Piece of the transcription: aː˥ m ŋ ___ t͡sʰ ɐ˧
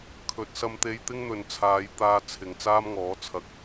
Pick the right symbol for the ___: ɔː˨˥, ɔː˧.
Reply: ɔː˨˥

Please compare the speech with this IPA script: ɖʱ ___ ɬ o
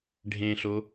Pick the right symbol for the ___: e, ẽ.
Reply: ẽ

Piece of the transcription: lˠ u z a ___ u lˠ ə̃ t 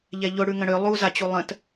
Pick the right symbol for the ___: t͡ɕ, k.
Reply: t͡ɕ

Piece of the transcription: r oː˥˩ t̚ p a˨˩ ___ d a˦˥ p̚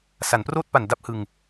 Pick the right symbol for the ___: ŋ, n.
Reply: n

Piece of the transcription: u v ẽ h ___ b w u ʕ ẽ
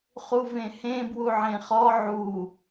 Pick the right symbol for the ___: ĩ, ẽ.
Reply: ẽ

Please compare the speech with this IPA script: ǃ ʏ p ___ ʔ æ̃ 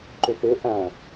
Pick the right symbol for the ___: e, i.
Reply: e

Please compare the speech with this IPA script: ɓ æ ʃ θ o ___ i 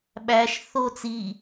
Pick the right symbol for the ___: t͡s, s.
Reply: t͡s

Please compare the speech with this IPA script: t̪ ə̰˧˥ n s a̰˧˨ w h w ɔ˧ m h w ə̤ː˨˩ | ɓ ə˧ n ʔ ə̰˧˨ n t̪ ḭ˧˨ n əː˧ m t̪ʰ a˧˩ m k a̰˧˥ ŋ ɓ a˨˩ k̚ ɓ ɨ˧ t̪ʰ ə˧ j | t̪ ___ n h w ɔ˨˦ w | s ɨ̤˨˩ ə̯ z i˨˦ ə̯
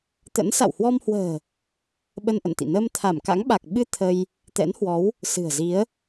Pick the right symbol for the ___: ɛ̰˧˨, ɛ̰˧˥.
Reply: ɛ̰˧˥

